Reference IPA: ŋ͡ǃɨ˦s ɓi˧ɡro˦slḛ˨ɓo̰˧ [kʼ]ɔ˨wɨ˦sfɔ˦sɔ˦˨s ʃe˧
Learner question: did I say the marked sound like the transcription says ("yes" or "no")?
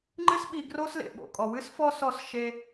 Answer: yes